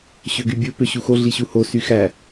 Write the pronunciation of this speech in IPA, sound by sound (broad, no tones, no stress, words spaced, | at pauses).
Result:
ɕøɡybʲo pøɕuxo ɮiɕuho syxæ